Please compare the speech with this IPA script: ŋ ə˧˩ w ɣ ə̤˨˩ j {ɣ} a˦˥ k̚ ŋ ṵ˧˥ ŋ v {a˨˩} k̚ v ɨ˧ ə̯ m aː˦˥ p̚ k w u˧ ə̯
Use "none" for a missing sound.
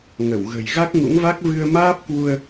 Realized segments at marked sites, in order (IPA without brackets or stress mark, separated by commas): ɣ, a˦˥